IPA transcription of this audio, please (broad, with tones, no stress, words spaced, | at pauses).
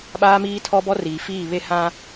ɓaː˦miː˦tʰɔ˦ bɔ˦riː˨fiː˦˨ βe˦hã˦